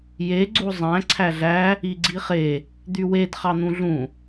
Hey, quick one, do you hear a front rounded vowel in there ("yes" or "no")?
yes